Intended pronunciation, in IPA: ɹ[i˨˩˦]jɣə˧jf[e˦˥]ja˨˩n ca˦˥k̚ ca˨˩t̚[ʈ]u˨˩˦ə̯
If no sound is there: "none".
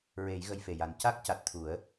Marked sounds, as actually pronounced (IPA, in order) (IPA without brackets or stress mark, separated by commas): e˨˩˦, e˨˩, t̪ʰ